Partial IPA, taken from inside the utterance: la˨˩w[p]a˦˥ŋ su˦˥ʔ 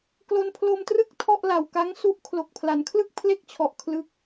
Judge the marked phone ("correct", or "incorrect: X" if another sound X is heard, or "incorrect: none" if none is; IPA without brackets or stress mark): incorrect: k